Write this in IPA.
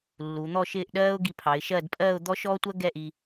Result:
lː u˩˧ n̪ ɔ˥˧ ʃ ɪː˥˧ ʔ ɗ ɜː˥ ʊ̯ ɡ i˧ pʰ ɑ˩˧ ɪ̯ ʃ ɜ˥˧ d pʼ ɜː˥˧ ʊ̯ d̪ ɔ˥ ʃ ɔː˥ tʷ ɜ˥ ɡ ɛ˥˧ ʔ i˧

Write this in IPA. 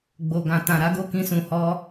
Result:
ɡ͡b o˨ ɡ ã˨ t ã˨ ɾ a˨˦ ɡ o˦˨ k ĩ˧ s ũ˨ h ɔ˧

